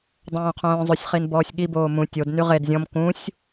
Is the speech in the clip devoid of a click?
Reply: yes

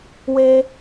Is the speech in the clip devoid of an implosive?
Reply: yes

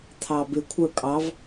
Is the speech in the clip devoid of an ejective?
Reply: no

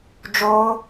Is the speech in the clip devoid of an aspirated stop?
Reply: yes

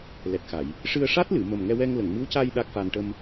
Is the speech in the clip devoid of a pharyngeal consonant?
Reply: yes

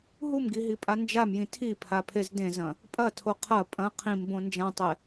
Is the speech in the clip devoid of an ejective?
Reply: no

